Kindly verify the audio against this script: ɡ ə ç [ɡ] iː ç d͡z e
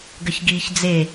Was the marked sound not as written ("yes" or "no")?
no